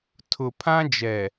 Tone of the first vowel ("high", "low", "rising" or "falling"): low